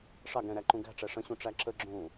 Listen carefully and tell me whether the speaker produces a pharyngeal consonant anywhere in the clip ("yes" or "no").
no